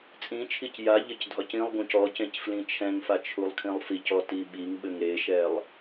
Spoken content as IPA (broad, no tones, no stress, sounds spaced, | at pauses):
t͡sʼ ĩ t͡ʃʰ i c j a ʎ ɘ c dʱ ɒ c ĩ lˠ ɡ ũ c ɔ c ẽ c f l ĩ t͡ʃʰ ɛ̃ ŋ f a t͡ʃʰ u lˠ kʰ ĩ lˠ f i c ɔ t i ɓ i ŋ ɓ ɘ ŋ ɾ e ʃ ɛ lˠ